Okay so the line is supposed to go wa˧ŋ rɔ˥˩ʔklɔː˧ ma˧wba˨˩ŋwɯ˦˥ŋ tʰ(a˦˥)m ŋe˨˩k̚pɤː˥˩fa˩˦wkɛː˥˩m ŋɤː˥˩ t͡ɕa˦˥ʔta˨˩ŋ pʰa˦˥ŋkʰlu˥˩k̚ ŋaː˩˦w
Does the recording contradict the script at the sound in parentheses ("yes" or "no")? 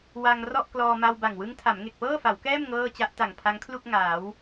yes